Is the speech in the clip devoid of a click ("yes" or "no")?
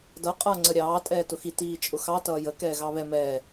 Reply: no